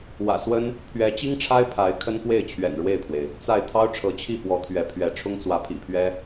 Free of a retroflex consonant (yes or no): no